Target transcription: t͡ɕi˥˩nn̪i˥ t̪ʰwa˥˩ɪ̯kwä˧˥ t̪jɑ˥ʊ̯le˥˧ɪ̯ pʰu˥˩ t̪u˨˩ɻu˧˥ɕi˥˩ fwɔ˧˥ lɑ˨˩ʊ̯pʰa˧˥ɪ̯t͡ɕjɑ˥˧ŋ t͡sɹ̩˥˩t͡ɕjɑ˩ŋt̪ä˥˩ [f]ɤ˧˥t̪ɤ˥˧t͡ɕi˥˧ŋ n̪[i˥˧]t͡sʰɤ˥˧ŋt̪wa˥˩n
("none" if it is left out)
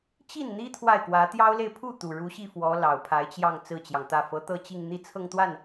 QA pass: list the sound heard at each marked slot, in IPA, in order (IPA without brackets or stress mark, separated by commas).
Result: f, i˥˧